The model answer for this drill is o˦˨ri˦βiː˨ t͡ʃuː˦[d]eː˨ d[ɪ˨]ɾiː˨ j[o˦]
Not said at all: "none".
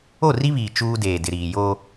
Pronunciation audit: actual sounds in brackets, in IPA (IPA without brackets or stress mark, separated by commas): d, ɪ˨, o˦